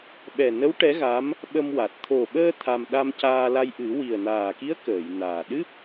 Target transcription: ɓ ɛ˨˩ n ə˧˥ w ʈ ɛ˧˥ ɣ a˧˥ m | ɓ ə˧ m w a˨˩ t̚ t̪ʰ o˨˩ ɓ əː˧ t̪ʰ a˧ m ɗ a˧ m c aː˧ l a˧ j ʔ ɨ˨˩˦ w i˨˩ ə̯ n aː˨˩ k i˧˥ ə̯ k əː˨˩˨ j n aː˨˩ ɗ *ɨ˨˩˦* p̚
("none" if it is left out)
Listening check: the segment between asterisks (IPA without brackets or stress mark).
ɨ˦˥